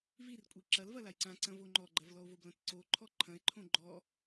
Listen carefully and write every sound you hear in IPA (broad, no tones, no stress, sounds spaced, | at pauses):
v i r kʷʼ i ǁ ɐ l v ɐ l a j ǀ ã ǀ ɐ̃ v o ŋ͡ǃ ɔ ɡ͡ǃ ɐ v l ɔ o̯ v o b l ɐ̃ t ǀ o ǃʰ ɔ ǃʰ ɐ̃ e̯ ǃʰ õ ɡ͡ǃ ɔ